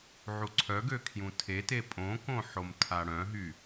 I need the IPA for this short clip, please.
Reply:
ʕ u ǀʰ œ ɡ ø kʰ j ũ tʰ e t e pʼ õ k õ ħ o m tʰ a ɽ œ̃ ɦ y

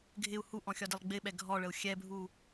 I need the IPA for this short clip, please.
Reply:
ɡʱ ɪ u̯ h u ʔ ɔ̃ xʲ ɒ d ɪ lˠ ɡ͡b ɪ ɓ ɛ ɡʱ ɔ ɭ ə u̯ xʲ ɛ bʱ u

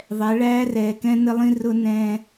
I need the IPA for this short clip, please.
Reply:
ðˤ ɛ˨˦ ɭ æː˦ r ɛː˨ k ɛ̃˦ n ə˦ lˠ ĩ˦ r ʊ˦ n ɛ̃˦

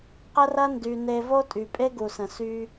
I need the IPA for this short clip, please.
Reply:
q ə˦ r ɐ˦ n d y˨ n e˧ v o˦ tʼ y˨ pʼ e˦ ɡ u˨ s ə̃˨ s y˧

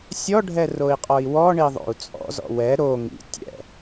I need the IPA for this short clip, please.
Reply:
sʲ ɔ ɖʱ ɛ r o i̯ qʼ ɔ i̯ w ɔ ɳ i ðˤ o̰ u̯ t͡sʼ ɔ̰ z ɔ̰ w ɛ ɾ o ŋ ḭ tʲ ɛ̰

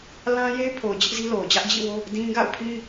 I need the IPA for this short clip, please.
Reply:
l ã˦ j e˦ ɪ̯ pʰ o˨ ʊ̯ d͡ʑ ɪ˦ ʔ z i˦ l o˨ ʊ̯ d͡ʑ ä˦ ʔ d͡ʑ ḭ˦˨ w o˦ | d ĩ˦ ɡ a̰˦˨ ʊ̯ pʰ ĩ˦

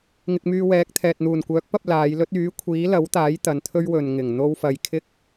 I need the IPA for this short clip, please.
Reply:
ŋ ɪ˧ k̚ m yː˧ w ɛː˨˥ k̚ t̪ʰ ɛː˨ t̚ n̪ uː˨˩ n kʷ œː˨˥ k̚ p ɐ˧ p̚ l aː˨˧ j l ɵ˥ t̚ yː˨˥ kʷʰ iː˨˥ l ɐ˨˥ w t̪ aː˨˥ j t̪ ɐ˨˧ n t̪ʰ ɵ˥ ɥ w ɵ˨ n ŋ ɪ˨˩ ŋ n̪ o˥ w f ɐ˧ j kʰ ɪ˥ k̚

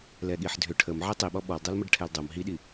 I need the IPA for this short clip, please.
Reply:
l ɛ ɠ i ħ dʱ ʏ ʈʰ ə m ʕ i tˤ i ɓ ɔ ɓ ɔ l dˤ o l m ə ɖ ʈʰ ɛ l dˤ o m ɦ i ɗ i

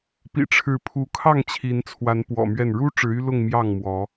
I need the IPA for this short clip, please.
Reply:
p ḭ˨˩ ʈ͡ʂʰ ɻ̩˨˦ pʰ u˨˦ kʰ ɑ˥˨ ŋ t͡ɕʰ i˨˦ n t͡sʰ w a˨˦ n p w ɔ̰˨˩ m ɥ ɛ˥˨ n ɻ u˦ ʈ͡ʂ ɻ̩˨˦ y˦ l ʊ˥˨ ŋ m j ɑ˥˨ ŋ m w ɔ˨˦

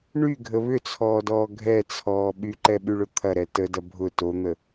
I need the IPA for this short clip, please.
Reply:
ɳ y ɡʱ ə β ʏ t͡sʰ ɔː d ɔː ɡʱ ɛ t͡sʰ ɔː ɓ y ǃ ɛ ɓ y ɭ ʊ t̪ʰ ɐ ɾ ɛ t ə d ɐ bʱ ʊ t o n̪ ə

